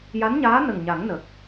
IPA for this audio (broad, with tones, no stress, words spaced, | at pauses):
ja˧˥nɲaː˧˥ nə˨˩ŋɲa˨˩˦ŋnə˨˩k̚